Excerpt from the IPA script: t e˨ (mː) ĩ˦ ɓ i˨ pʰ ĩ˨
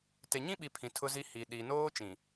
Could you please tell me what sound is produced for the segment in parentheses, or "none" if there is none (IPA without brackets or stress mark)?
ɲ